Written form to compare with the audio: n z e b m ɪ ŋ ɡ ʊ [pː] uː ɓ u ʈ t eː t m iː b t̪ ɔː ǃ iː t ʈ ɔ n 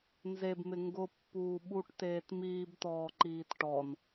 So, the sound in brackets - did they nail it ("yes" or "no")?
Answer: yes